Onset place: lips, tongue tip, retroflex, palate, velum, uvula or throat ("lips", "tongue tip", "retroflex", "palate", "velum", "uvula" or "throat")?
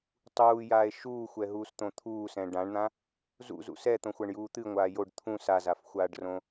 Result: tongue tip